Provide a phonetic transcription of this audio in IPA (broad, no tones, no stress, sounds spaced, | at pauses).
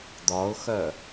d̪ ɒ ʊ̯ x œ